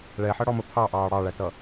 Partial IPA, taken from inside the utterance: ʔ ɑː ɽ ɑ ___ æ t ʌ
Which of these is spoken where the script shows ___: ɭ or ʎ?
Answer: ɭ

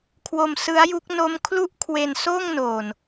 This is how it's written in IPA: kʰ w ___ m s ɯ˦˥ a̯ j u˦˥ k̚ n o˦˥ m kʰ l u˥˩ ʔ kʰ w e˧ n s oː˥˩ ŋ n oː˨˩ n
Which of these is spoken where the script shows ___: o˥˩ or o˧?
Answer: o˧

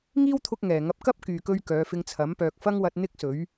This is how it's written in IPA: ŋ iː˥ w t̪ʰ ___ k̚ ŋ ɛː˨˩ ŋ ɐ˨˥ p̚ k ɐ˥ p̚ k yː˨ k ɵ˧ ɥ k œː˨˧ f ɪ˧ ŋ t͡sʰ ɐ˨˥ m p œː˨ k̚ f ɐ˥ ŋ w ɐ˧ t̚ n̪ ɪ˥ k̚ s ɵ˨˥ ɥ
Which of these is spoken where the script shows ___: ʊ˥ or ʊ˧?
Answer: ʊ˧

